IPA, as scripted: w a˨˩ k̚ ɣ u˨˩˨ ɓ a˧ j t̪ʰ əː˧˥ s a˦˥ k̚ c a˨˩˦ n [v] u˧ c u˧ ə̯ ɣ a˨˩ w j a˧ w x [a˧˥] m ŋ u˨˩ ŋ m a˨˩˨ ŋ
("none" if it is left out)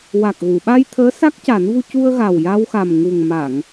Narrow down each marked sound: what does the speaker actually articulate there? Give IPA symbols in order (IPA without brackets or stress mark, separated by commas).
v, a˨˩